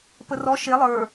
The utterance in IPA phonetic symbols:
p ə r ɔ ʃ e lˠ ə˞

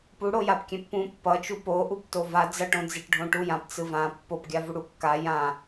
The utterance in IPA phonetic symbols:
p u ɽ o j a p kʲ ɛ̃ pː ũ pː ʌ t͡ʃ u p o ʔ u p t o v a d͡z ʌ ʈ õ d͡z e ʈ ɖʱ õ ʈ u j ã p t͡s ɯ v ã pː o p ɡʲ a v u ɽ u kː a j ã

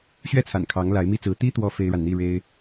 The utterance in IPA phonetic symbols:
ɕ ɥ ɛ˥˩ t͡sʰ a̰˨˩ n kʰ ɑ˧˥ ŋ l a˧˥ ɪ̯ m i˥ t͡s ɹ̩˧˥ t̪ i˥ t̪ w ɔ˧˥ f e˥ ɪ̯ ɻ a˨ n n̪ i˥˩ ɻ e˥ ɪ̯

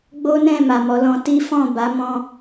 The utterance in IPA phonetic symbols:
ɡ͡b o˦ n ɛ̃˦˨ m a˨ m ɔ˨˦ l ɔ̃˧ t i˦ f ɔ̃˦˨ b a˨˦ m ɔ̃˧

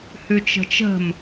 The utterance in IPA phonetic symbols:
h ʉ t͡ʃ ə̤ t͡ʃ ə̤ m

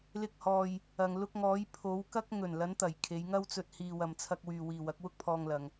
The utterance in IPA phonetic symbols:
l ɪ˧ k̚ h ɔː˨ j | ɐ˨ ŋ l ʊ˧ k̚ ŋ ɔː˨˧ j pʰ o˨˧ w k ɐ˥ k̚ ŋ ɵ˨˩ n l ɐ˨˧ n t̪ ɐ˨˩ j kʰ e˨˧ j ŋ ɐ˥ w t͡s ɵ˧ t̚ h iː˨ w ɐ˨ m t͡sʰ ɐ˧ k̚ w yː˨ w iː˨ w ɐ˨˥ k̚ w ʊ˥ k̚ pʰ ɔː˧ ŋ l ɐ˨ ŋ

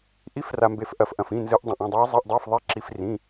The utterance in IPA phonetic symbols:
ʔ i˦˥ f r a˧ m b e˧ f ʔ ɐ˧ f ʔ ɐ̃˧ f ĩ˧˥˧ n z ɨ˦˥ ʔ dˤ ɐ̃˧ ʔ ɐ̃˧˥˧ dˤ ɨː˦˥ zˤ i˧˥˧ ʔ dˤ ɵː˧˥˧ f ðˤ e˦˥ ǁ i˦˥ f r ĩ˧˥˧

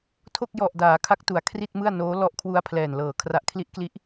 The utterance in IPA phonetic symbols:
tʰ o˥˩ k̚ j ɔ˨˩ ʔ d aː˩˦ kʰ a˦˥ k̚ t u˩˦ a̯ kʰ r i˥˩ t̚ m ɯ˥˩ a̯ n oː˦˥ l ɔ˦˥ ʔ kʰ w u˧ a̯ pʰ l ɛː˨˩ n l ɤː˨˩ kʰ r a˦˥ ʔ kʰ l i˦˥ ʔ k l i˦˥ ʔ

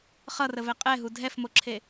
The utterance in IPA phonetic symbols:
χ ʌ r ə v ɛ qʼ ɛ ɦ u dʱ ɛ f m o ǁʰ e

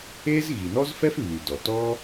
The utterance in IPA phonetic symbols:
e˥ z ɣ i˩ n ɔ˥ z f ɛ˥ f β y˩ d ɔ˩ t ɔ˥

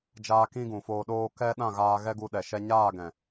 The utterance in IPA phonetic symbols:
d͡ʒ aː˧ k ĩ˦ ɡ ũ˨ f oː˧ ɗ oː˦ k ɛ˦ ɗ ã˦˨ ɣ aː˧ ɣ ɛ˦ ɡ u˧ ɗ ɛ˨ ʃ ɛ˧ ɲ aː˦˨ ɡ ɛ̃˨

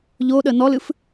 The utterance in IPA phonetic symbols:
ʎ o ɗ ə n ɔ l ɨ f

